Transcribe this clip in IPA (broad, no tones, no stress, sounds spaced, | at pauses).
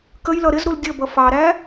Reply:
k ə j l ʌ ɾ ɪ z ɾ u l dʲ ʌ b ʌ f ɑ ɾ æ